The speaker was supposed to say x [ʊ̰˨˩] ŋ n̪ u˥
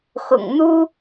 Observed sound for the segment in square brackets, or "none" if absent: ʊ̰˨˩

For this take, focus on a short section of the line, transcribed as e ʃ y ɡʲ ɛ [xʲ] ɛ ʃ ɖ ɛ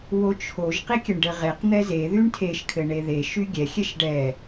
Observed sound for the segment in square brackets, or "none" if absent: xʲ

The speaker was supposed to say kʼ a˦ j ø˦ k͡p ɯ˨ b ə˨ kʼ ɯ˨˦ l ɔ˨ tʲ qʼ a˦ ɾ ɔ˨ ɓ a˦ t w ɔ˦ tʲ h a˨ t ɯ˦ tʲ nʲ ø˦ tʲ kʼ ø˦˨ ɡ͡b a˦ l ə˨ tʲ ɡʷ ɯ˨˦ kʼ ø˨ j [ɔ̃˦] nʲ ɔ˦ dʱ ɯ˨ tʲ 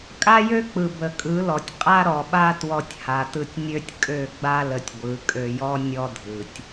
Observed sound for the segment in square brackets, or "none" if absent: ɔ˦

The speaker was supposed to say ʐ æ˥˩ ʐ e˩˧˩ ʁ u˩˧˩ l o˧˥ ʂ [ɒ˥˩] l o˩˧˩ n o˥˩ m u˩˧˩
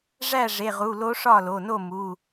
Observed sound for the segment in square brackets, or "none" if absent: ɒ˥˩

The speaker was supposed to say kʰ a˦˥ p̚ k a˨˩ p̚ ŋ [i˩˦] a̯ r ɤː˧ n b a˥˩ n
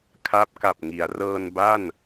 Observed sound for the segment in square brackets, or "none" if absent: i˩˦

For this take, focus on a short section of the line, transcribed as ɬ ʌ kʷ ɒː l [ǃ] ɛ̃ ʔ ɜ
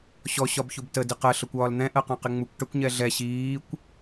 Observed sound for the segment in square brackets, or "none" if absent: n̪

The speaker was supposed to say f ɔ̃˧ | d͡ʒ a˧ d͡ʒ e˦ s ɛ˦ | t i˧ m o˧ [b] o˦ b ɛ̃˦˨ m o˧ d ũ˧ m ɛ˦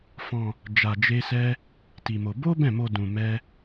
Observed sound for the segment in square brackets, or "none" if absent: b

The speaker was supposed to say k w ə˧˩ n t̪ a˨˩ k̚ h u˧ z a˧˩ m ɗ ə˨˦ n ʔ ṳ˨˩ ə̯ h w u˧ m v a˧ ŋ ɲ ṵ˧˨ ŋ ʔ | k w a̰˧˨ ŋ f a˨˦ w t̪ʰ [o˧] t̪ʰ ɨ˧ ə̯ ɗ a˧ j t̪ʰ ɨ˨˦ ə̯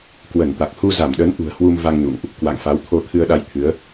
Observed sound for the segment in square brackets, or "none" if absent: o˧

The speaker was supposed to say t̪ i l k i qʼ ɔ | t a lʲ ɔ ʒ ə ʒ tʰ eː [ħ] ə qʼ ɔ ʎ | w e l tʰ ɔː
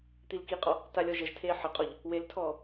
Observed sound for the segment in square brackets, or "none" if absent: ħ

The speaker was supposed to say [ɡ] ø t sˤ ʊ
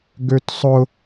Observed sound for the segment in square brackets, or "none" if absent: ɡ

